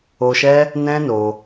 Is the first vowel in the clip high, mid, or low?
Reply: mid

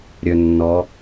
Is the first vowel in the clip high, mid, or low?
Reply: mid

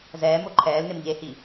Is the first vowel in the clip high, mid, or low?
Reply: mid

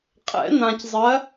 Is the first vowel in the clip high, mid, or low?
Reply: mid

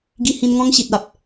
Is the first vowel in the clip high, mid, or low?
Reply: high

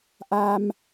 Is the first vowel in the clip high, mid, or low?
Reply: low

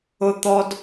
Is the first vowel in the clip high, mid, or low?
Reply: high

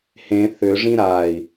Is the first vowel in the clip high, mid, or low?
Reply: mid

